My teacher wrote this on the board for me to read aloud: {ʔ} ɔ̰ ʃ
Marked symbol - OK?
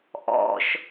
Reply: yes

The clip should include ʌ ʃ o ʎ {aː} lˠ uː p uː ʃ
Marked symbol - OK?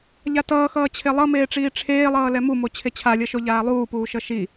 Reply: yes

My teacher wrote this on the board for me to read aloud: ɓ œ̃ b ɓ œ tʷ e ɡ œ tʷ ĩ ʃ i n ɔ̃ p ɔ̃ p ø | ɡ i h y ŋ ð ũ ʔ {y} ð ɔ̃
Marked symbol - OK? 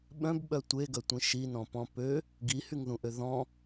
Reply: no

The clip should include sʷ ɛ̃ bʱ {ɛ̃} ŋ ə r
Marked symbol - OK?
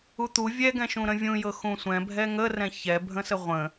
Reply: no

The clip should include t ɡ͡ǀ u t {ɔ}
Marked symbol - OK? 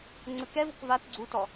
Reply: yes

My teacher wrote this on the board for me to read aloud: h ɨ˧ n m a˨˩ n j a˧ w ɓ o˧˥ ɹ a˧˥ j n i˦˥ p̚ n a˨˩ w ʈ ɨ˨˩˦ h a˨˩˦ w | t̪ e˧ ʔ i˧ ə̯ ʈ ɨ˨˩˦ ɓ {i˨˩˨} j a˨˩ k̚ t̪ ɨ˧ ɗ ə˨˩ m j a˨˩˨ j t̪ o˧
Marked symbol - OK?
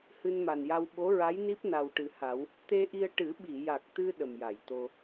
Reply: yes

